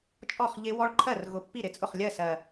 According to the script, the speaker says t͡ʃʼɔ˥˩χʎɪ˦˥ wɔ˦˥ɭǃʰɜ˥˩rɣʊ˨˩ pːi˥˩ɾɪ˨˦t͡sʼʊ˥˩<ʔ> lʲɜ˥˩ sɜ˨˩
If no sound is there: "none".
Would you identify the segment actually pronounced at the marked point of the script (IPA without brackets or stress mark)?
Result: χ